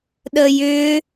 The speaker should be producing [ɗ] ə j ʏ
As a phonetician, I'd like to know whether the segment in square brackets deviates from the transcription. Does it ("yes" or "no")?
no